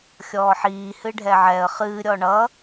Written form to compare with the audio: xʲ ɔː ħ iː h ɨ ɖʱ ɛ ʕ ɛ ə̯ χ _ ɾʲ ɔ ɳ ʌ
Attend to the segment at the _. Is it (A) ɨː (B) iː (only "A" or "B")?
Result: A